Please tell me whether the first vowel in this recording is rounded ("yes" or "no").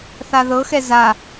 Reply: no